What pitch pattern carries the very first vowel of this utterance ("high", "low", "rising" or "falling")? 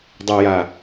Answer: low